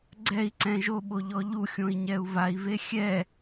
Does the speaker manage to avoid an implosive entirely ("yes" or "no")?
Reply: no